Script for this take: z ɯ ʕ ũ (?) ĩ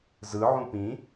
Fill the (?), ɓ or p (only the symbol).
p